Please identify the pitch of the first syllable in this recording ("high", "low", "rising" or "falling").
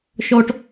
high